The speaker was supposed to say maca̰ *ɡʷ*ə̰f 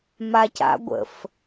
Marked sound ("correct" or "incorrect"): correct